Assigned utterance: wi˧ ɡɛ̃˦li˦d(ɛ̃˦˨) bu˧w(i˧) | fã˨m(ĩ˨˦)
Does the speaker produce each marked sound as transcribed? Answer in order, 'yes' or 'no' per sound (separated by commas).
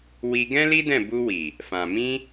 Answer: yes, no, no